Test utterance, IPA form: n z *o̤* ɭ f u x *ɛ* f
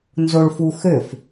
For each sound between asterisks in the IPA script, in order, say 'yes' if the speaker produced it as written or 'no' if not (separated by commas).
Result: no, no